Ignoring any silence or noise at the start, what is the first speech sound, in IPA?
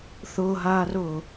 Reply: θ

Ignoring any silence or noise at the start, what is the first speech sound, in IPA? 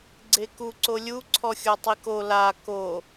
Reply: ɡ͡ǀ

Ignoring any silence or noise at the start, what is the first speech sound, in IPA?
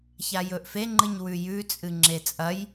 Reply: ç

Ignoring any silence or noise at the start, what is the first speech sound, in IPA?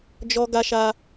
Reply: d͡ʒ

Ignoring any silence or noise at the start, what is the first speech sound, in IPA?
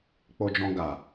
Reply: k͡p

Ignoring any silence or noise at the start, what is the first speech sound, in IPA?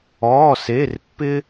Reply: ɔː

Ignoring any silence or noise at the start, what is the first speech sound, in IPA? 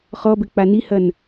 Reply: χ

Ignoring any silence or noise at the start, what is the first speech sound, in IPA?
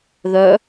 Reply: ð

